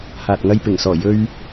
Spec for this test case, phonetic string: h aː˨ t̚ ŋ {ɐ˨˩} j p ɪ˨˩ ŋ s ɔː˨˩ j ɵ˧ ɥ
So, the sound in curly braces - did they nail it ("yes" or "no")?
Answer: no